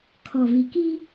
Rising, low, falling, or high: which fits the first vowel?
low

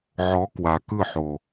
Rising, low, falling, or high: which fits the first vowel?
rising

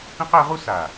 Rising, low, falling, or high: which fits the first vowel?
high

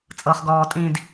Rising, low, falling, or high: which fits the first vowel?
low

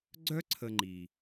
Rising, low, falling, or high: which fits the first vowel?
high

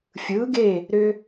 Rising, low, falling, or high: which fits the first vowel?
rising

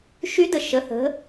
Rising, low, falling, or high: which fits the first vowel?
rising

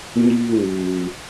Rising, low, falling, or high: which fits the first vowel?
high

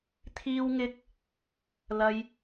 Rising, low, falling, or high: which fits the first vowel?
high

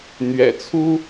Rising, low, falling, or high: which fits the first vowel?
low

